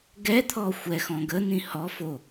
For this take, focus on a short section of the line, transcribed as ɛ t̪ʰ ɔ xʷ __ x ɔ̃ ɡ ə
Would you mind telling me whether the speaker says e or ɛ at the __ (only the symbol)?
ɛ